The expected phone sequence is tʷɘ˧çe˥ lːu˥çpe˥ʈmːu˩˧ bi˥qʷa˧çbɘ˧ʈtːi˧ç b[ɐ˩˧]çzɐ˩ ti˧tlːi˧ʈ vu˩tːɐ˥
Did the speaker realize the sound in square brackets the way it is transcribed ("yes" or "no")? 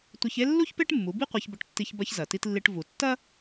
no